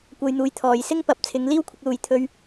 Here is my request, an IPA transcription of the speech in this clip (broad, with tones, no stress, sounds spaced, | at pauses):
kʷ ɐ˧ j n̪ uː˨˥ j t̪ʰ ɔː˨ j s ɪ˥ ŋ p ɐ˨˥ p̚ t͡sʰ ɪ˨˧ ŋ l iː˥ w kʷʰ ɪ˧ k̚ l uː˨ j t̪ʰ ɵ˧ ɥ